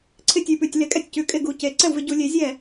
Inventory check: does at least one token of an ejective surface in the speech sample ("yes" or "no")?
yes